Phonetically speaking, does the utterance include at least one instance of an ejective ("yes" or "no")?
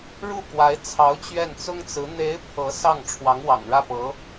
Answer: no